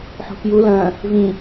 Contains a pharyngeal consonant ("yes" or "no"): yes